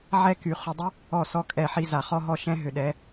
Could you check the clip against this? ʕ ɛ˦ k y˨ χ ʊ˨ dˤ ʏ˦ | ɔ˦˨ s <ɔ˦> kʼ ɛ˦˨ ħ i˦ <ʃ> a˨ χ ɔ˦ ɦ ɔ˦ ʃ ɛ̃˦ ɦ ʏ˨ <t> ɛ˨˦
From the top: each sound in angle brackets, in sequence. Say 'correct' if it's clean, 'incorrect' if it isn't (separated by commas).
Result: correct, incorrect, incorrect